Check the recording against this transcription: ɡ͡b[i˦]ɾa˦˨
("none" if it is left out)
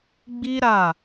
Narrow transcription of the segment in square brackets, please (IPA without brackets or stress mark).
i˦